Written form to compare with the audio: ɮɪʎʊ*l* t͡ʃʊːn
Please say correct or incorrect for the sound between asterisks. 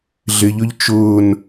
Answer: incorrect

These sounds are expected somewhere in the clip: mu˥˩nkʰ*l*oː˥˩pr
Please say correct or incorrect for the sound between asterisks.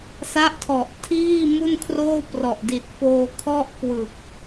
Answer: incorrect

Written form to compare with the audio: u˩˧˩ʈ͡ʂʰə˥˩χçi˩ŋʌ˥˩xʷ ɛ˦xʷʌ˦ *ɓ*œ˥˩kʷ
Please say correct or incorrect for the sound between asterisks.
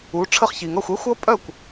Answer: incorrect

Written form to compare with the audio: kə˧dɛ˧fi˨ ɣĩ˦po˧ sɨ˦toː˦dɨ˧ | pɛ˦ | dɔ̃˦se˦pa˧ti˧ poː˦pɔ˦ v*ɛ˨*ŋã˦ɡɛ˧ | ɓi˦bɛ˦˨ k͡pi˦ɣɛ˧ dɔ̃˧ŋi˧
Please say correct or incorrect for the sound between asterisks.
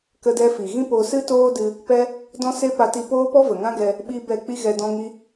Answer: incorrect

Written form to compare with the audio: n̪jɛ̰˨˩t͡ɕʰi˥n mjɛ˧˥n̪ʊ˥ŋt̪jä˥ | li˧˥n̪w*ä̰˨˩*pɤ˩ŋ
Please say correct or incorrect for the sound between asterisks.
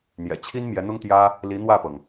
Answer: incorrect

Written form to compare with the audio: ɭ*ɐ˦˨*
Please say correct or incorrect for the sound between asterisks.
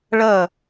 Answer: correct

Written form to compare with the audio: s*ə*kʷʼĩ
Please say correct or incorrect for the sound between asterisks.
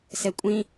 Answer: incorrect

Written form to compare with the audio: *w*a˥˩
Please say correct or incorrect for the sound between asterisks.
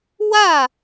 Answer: correct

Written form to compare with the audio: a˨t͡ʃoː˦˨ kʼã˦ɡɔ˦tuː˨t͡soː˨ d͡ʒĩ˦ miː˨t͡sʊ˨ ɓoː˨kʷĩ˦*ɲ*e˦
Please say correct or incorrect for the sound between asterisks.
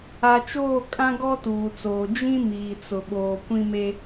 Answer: incorrect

